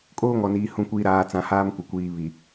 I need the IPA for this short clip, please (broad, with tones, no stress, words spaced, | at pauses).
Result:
kʼoː˦ŋɔ˨niː˨ hũ˨kʷiː˨ ɾaː˨ t͡sã˨haː˦mkʷɪ˨ kʷiː˨ βi˨